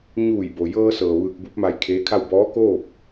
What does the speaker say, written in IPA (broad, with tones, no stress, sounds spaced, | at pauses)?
ɲ uː˧˩ j b o˩ j ɤː˧ s ɤː˩ ʋ ɯː˧ k̚ b u˧˥ p̚ m a˧ j kʰ eː˧˥ kʰ a˥˨ w b ɔː˧˥ k oː˥˨ p̚